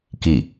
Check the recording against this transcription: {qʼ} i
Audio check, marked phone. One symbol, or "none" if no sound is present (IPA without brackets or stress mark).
k